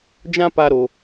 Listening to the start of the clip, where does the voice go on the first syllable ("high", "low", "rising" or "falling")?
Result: high